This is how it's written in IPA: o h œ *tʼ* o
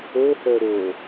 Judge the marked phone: incorrect: ɾ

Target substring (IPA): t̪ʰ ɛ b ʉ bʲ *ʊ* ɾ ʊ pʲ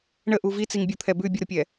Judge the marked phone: incorrect: ə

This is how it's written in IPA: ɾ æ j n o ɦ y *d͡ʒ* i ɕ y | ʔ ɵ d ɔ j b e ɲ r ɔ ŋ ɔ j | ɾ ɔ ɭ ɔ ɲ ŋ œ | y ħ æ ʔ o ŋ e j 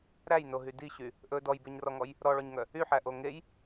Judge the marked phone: incorrect: d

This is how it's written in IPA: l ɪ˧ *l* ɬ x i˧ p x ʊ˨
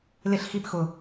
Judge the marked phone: incorrect: none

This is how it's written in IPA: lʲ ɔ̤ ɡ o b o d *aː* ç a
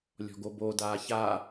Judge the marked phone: correct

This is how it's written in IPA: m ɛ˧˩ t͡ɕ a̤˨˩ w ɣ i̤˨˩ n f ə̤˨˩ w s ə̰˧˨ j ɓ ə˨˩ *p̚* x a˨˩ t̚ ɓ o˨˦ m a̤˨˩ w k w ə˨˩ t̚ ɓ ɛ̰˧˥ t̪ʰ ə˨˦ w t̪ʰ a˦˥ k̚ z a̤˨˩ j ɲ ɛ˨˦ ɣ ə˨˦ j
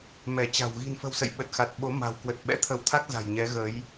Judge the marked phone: incorrect: t̚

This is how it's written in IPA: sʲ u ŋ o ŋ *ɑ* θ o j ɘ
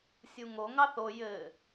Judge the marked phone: correct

